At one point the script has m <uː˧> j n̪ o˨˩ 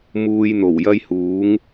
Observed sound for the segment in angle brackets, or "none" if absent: uː˧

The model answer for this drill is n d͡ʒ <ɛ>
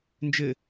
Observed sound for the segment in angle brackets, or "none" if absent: ɘ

